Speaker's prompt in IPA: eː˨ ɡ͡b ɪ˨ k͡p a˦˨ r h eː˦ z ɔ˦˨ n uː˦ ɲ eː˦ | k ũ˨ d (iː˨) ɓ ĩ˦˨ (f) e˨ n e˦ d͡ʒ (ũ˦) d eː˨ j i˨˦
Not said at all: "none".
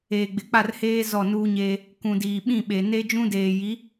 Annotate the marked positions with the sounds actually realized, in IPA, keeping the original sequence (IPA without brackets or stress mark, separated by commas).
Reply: iː˨, ɓ, ũ˦